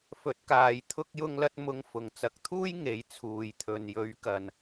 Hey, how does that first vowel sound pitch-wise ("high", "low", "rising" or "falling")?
rising